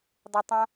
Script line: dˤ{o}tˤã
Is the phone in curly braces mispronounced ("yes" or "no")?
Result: yes